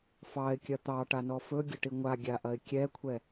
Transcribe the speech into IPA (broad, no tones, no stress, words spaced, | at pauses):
fɑɪ̯kʲɐ t̪ɑʈanɔ fɵɡʲɐʈi ŋʷaɡʲaʔɐɪ̯ kʲɛkʷʰɛ